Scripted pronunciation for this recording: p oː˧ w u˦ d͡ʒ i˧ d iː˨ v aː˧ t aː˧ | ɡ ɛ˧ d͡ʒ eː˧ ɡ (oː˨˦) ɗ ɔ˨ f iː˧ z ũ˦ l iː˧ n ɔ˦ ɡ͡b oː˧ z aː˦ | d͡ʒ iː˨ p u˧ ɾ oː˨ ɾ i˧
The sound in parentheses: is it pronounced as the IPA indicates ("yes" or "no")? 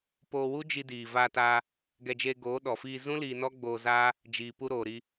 yes